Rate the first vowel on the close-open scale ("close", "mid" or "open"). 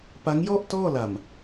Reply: open